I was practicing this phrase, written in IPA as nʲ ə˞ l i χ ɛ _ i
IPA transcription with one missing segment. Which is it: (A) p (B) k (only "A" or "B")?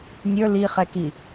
B